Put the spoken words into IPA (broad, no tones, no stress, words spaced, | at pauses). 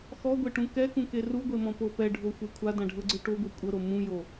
xɔɡʷeʈũ kɛkũke ruɡʷemɔ̃po pɛɖʱoxʷe kʷʰadãɖʱɤɡ͡ǀɯ ʈoɡʷi kʷʼɤɾo mũjo